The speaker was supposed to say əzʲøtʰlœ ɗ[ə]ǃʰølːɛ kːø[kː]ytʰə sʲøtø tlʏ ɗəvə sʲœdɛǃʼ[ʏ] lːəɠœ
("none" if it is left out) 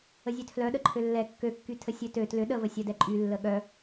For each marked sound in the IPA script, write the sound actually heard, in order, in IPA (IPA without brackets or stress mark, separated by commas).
ə, kː, y